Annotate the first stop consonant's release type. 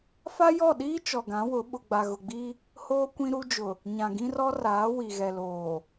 implosive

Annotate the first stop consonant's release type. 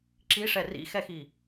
click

